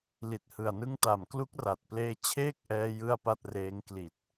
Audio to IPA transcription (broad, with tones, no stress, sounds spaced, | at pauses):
l i˨˩ t̚ h ɯ˨˩ a̯ n ɯ˦˥ ŋ t a˨˩ m k l u˦˥ k̚ r a˨˩ t̚ p l eː˧ t͡ɕʰ eː˥˩ k̚ ʔ ɛː˧ j ɯ˥˩ a̯ p a˥˩ t̚ r eː˦˥ ŋ k l i˨˩ t̚